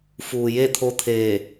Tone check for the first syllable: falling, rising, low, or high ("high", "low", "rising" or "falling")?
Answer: low